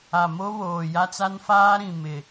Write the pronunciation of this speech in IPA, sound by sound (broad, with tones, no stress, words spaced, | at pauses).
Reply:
a˨mo˦ βoː˨ja˦t͡sa˦n faː˦ɾĩ˨mɪ˨